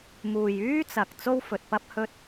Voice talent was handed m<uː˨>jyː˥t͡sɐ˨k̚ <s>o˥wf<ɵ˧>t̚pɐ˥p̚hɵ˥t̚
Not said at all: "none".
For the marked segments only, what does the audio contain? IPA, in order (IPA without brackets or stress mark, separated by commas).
uː˨, t͡s, ɵ˨